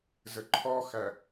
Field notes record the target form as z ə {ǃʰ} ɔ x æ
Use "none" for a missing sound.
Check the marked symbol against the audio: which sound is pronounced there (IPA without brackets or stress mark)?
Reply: ǃʰ